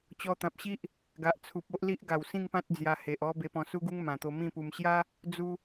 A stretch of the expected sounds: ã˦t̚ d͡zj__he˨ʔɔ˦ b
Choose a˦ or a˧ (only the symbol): a˧